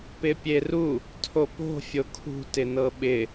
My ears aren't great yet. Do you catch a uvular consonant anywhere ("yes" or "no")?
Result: no